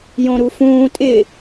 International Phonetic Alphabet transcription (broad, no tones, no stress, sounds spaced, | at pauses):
j õ ɾ u f ũː tʼ ɪ